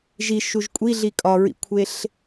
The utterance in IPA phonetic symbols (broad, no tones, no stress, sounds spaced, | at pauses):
ʒ i ʃ u ʒ kʷʼ i ɮ i kʼ ɒ ɹ ḭ kʷʰ e ɬ